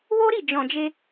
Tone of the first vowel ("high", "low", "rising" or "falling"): high